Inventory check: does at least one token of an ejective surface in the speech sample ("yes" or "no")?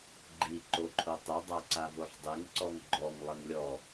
no